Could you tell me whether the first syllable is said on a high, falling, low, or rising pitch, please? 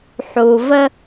low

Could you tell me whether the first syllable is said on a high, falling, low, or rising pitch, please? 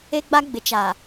high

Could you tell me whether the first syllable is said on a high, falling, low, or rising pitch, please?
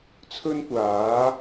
high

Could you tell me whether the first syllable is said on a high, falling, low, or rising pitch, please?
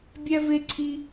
high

